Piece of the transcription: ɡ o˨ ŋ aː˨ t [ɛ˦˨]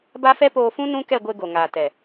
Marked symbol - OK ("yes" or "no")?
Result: no